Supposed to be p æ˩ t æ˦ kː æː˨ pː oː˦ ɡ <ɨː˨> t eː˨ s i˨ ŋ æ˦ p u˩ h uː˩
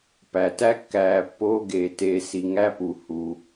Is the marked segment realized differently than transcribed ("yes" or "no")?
yes